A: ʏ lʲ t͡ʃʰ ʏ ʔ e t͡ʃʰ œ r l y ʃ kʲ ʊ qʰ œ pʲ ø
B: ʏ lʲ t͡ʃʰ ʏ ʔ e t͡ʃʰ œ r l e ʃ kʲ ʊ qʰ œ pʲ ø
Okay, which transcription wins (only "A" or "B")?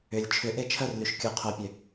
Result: A